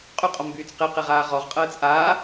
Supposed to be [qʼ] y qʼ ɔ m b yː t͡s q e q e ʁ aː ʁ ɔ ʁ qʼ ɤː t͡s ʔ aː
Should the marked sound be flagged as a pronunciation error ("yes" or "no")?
no